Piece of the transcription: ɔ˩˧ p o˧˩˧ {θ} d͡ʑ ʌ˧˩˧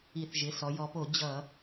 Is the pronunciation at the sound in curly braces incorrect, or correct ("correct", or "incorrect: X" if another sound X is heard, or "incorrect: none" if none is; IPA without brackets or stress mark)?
incorrect: none